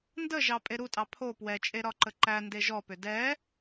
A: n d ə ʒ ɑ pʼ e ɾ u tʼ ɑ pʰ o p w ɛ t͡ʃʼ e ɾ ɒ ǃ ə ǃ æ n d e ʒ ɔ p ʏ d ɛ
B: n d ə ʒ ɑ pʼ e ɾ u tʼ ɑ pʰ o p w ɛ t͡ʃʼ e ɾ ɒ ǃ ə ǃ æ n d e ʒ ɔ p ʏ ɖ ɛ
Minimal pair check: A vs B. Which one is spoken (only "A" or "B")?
A